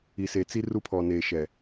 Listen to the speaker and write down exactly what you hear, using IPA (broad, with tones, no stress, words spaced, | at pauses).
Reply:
i˨se˨t͡si˦ ru˦pʰɔ˨neː˨ʃɛ˨